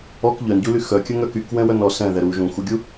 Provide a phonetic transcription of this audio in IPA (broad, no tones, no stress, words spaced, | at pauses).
ɔk ʎœnɟuly xœkʲəŋœk ykwɛ̃wœn ɔ sɛ̃ðɛ ɾu ʒũxuɡʲu